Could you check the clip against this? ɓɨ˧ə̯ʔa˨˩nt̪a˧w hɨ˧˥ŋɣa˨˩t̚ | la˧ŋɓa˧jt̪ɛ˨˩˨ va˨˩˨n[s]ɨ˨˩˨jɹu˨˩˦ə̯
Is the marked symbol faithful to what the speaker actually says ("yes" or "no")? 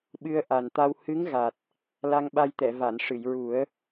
no